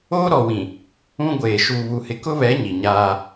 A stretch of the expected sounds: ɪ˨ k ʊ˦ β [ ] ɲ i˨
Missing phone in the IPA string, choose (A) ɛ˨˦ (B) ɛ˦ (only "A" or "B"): A